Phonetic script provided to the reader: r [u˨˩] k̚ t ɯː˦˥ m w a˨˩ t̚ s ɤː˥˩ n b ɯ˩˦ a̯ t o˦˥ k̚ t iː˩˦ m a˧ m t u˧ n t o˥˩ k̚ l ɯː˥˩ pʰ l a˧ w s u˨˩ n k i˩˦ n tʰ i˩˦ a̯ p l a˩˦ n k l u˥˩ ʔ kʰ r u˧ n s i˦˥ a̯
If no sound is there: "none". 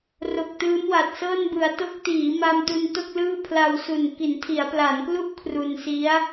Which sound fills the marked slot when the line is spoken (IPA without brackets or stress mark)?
o˨˩